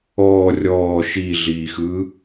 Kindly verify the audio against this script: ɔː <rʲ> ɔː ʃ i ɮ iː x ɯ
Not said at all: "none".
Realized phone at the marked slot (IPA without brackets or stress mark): rʲ